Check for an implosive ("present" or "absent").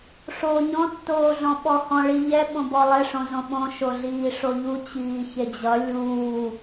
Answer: present